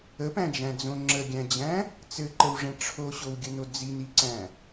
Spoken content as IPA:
ə p æ̃ d͡ʒ æ̃ d͡z õ ŋ͡ǁ ə ɡʲ æ̃ d͡ʑ æ̃ | t͡s ɘ ǃ ə w ʐ ɛ̃ ʈ͡ʂʰ o ɕ o w ɡʲ ə n o d͡z i n i ǀ æ̃

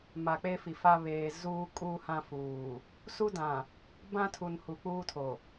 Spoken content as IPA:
m a˨ k͡p e˦ f i˨ f a˦ β eː˨ z uː˦ kʼ uː˦ h ã˦ f uː˨ | s u˦ d ã˨ | b ã˦ tʰ u˨ n h u˨ k͡p uː˦ tʰ o˨

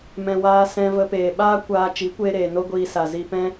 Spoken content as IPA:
m ɛ̃˨ w aː˧ s ɛ̃˧ v ə˧ p eː˨ ɓ aː˦ kʷ aː˧ t͡ʃ i˨˦ kʷ eː˧ ɾ eː˨ n o˦ ɡʷ iː˧ s a˨ z i˧ p ɛ̃˦

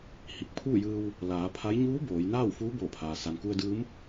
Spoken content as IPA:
h i˧˩ k̚ pʰ uː˥˨ j ɯː˧ w | l aː˩˧ pʰ a˧˥ j ɲ uː˧˥ b oː˩˧ j n aː˥˨ w f uː˧˥ b oː˧˩ pʰ aː˩ s a˩ n k u˧ ə̯ d ɯː˧˥ m

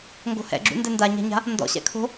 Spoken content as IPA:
ŋ ɡ o̤ h ɛ̰ ɡ͡ǁ ṵ n d ɛ n d a ɲ a̤ ɲ a̤ | n d ɔ̰ ɕ ɛ̰ kʰ o̤

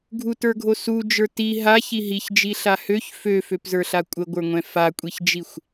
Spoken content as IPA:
ɡʱ u t ə˞ ɡʱ o s u d͡ʒ ə˞ t i ɦ a ç i ɦ i ç d͡ʒ i ɬ a h ø ç f ø f ø p z ə˞ ɬ a kʷʼ ə ɡʷ ə˞ ŋʷ ɛ̃ f a kʷʼ i ç d͡ʒ i xʷ

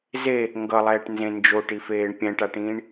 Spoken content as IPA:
z e | ŋ ɡ ʌ lˠ ɛː ʈ n z ẽ n d͡ʒ o ʈ i f eː ɳ pʲ ɛ̃ ʈ a ʈ ĩː ɳ

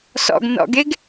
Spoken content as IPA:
s ɔ̰ ɡ n ɔ̰ ɡ e ɡ

